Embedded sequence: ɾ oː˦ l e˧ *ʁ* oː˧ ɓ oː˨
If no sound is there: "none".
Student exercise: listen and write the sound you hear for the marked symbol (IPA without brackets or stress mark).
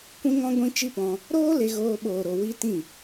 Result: ɣ